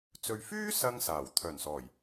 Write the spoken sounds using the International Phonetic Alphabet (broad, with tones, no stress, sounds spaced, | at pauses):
t͡s ɵ˨ ɥ f yː˥ s ɐ˥ ŋ s aː˨˩ w t̪ʰ œː˨˩ n s ɔː˨˩ j